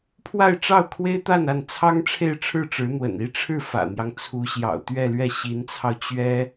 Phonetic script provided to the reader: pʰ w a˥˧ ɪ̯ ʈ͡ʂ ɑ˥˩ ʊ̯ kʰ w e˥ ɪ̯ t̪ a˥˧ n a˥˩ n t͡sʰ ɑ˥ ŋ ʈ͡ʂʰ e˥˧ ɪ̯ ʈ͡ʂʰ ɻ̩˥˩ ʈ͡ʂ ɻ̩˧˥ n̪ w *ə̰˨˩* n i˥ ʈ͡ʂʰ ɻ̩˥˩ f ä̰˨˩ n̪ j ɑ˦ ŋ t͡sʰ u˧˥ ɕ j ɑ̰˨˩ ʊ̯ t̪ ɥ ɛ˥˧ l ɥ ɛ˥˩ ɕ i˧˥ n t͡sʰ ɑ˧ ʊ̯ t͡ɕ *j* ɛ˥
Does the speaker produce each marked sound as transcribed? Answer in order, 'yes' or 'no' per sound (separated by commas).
yes, no